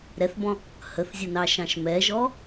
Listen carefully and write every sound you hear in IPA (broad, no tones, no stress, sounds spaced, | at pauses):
ɾ ɛ θ b ɔ̃ | h ə θ zʲ ə n ɑ ʃ ɑ̃ ʃ m ɛ ʒ ɔ